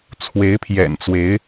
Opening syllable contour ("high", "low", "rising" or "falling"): rising